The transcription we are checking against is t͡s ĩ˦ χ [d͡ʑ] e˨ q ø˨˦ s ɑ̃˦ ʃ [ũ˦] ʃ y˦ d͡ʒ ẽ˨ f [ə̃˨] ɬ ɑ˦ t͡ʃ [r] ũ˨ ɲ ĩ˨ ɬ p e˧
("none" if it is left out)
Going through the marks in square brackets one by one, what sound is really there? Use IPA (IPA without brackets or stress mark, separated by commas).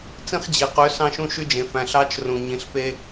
d͡ʑ, ũ˦, æ̃˨, r